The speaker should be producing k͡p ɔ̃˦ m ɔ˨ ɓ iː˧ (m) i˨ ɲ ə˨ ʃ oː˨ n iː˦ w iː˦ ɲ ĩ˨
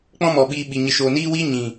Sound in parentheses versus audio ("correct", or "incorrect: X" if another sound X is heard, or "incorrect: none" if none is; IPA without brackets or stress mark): incorrect: ɓ